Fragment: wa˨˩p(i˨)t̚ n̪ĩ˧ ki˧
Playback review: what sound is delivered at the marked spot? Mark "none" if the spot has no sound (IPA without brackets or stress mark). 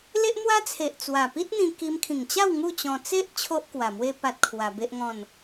i˦